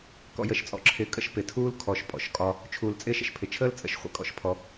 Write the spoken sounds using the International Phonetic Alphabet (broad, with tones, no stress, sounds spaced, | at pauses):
k ɔ̰˨ j ə˨ ʃ t͡sʼ ɔ̰˨ ǁʰ ɪː˨ kʼ ə̰˥ ʃ p ɪ˩ tʰ uː˥ l kʰ ɔ˨ ʃ pʼ ɔ̰˩ ʃ kʼ ɒ˦ | t͡ʃʰ uː˩ l t͡sʼ ɪː˦ ʃ ə̰˦ ʃ pʰ ɪ˩ t͡ʃʰ əː˥ l t͡sʼ ə̰˨ ʃ χʷ ə̰˦ kʼ ɔ̰˨ ʃ pʰ ɔ˨